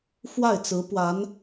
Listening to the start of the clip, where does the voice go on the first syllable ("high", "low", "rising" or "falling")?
falling